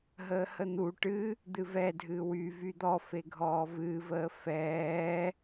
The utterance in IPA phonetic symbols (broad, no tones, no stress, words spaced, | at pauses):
ɦəːhən̪u ʈɨ | d̪ɨvɛdʱɨː wy vyd̪ɔ feɡʱɔːvɨːvəː fɛː